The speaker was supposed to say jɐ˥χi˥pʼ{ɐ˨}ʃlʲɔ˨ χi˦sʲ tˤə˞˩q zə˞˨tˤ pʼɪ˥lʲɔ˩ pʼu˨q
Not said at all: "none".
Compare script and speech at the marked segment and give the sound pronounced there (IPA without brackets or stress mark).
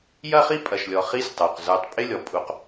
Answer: ɐ˨